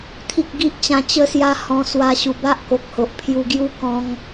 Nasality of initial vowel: oral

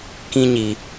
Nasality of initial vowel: nasal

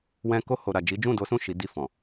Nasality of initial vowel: nasal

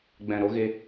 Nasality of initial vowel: nasal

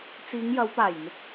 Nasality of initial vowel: oral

